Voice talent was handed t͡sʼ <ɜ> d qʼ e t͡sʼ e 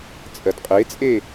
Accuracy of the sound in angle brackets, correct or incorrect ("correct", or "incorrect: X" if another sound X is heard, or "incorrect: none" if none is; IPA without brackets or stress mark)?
correct